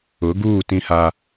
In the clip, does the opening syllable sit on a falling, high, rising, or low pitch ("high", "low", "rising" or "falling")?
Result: rising